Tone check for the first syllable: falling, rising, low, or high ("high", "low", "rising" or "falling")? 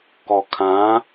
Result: low